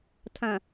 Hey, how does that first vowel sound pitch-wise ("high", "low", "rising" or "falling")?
low